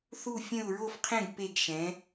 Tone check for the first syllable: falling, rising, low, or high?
falling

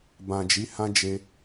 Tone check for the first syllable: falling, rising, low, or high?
low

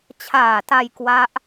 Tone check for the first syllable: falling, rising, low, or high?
low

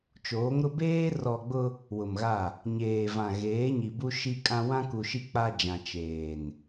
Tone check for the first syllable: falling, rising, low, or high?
rising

